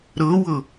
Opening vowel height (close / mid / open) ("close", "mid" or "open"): mid